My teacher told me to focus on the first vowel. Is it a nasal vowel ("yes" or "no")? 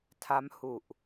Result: no